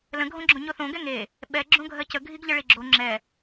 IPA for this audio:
l ə̃ ɡʱ õ ɡ͡ǁ õ ɲ o θ õ ɡ ɛ ŋ e | ɓ ɛ ɡ͡ǁ õ ɡʱ ɜ c ə ɡʱ i ɡ ʎ ə ɭ i ɡ͡ǁ o ŋ͡ǁ ɛ

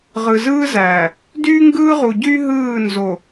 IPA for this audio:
ʁ ɯ˨ z ɯː˦ z æː˨ | d yː˦ ŋ ɡ ɯː˦ ʁ u˨ ɟ y˦ ɦ ɯː˦˨ n z o˨

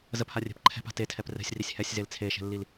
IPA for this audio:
z ə p h a rʲ ɛ̤ p ǃʰ ɛ̤ p a̤ t e tʰ ɛ p r ɛ̤ sʲ r i sʲ h ɛ sʲ z e l t͡sʰ e ʃ ɛ̤ lː i l

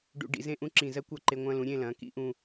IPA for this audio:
ɖ ṵ˧ ɖ ḭ˩˧ z ẽ˥˧ ʔ ũ˥ ǁ ĩ˧˩ z ɜ˥ kʷ ɐ˥˧ ǃ e˧ ŋʷ ɐ̃˧ l ũ˩˧ ɾʲ ẽ˥˧ l ɐ̃˩˧ k ḭ˥ ʔ ũ˧

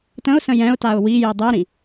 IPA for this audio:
t ə̃ ʊ̯ s ə̃ j ɛ̃ ʊ̯ t a ʊ̯ w i j i dˤ i ɾ ĩ

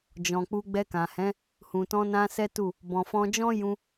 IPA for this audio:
d͡ʒ ɔ̃˨ k͡p u˧ ɡ͡b ɛ˧ k ã˨ h ɛ̃˨˦ | h ũ˨ t ɔ̃˧ n ã˧ s ɛ˦ t u˦˨ | b ɔ̃˨ f ɔ̃˧ d͡ʒ ɔ̃˦ j ũ˧

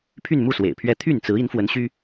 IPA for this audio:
pʰ y˥˧ n m u˥˩ s w ḛ˨˩ ɪ̯ pʰ ɥ ɛ˥ t̪ʰ y˥˩ n t͡s ɹ̩˧˥ i˧˥ n f w ə˧˥ n ɕ y˥

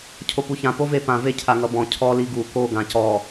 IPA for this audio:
cʰ o p u ç ã p o v e p ã v e cʰ a ŋ ʌ b ɔ̃ cʰ ɔ l i ɡ u k o ɡ ã c ɔ

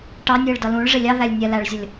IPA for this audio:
ʈ ɑ nʲ j ɪ ɭ d ʌ l ũ ɭ ʐ ɪ lʲ ɑ ð æ lʲ nʲ ɛ l æ ɭ zʲ ʌ lʲ

